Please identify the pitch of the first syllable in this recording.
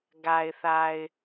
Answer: low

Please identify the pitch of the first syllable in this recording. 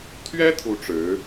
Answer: high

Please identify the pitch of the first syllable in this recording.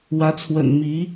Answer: rising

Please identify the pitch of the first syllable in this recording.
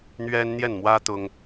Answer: high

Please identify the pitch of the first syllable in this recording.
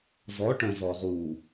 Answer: rising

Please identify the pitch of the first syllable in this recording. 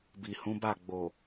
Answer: low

